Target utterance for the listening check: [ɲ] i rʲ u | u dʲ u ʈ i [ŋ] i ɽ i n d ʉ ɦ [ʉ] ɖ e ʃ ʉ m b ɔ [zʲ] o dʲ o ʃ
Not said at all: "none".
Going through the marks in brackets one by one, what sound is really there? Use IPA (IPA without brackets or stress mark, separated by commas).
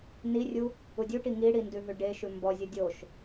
n, ŋ, ʉ, zʲ